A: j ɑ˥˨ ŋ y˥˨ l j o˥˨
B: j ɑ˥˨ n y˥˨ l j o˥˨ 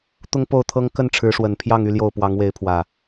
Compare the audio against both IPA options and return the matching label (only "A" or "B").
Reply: A